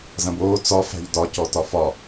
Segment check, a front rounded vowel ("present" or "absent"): absent